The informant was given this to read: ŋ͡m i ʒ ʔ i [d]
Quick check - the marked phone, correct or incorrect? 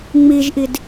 correct